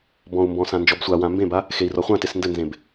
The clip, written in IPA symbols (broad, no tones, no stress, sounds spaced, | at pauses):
b ɔ̃ u̯ m b ɔ̃ s ã n d͡ʒ ɔ b sʷ a w ã m b ẽ b a | x e i̯ r ɔ χʷ ã t e s n d ɘ n z ẽ b